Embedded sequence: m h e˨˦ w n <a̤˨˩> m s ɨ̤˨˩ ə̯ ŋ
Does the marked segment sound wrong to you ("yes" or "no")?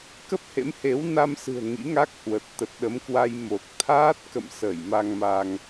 yes